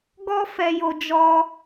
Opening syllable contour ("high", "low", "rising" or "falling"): high